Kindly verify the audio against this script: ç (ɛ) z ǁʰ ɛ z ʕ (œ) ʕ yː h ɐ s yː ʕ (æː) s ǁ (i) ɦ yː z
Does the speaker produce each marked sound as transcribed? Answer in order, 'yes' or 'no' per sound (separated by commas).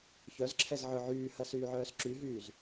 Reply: no, yes, no, no